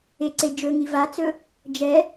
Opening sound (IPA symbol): e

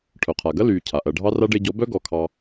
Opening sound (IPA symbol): ʈʰ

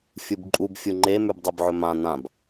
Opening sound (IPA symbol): fʲ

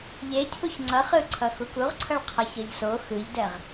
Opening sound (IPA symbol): ʎ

